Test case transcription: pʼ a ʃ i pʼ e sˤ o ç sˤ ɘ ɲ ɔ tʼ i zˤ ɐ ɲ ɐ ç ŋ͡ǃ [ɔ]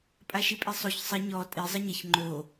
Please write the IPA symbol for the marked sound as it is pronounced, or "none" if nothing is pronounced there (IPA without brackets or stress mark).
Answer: o